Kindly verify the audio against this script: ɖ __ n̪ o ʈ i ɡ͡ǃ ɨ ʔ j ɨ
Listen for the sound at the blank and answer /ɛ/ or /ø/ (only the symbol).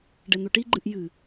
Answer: ɛ